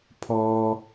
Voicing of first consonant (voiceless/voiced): voiceless